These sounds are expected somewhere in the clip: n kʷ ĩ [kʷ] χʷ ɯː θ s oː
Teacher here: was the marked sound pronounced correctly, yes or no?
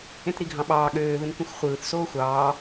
no